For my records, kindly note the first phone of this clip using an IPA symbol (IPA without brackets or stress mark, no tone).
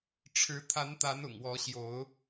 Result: ʈ͡ʂʰ